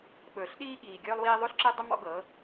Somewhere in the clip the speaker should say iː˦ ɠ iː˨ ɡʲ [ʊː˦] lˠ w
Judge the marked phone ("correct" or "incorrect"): incorrect